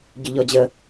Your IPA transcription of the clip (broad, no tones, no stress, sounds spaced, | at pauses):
ɟ ʏ ʎ ɔ d͡ʑ ə